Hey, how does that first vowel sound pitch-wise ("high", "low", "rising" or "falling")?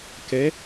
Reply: rising